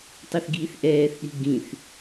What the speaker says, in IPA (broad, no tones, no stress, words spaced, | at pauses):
tˤɛθɡiːθʔɛːθɗi̤ ɡĩθ